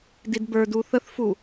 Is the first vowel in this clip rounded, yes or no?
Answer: no